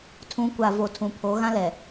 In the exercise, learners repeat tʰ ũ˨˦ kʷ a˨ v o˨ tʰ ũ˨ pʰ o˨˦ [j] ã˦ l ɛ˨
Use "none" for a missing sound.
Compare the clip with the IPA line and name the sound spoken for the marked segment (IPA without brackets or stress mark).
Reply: ɣ